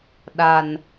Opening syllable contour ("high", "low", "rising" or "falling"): low